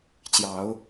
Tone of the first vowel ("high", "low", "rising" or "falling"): rising